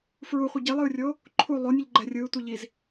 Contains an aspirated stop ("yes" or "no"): yes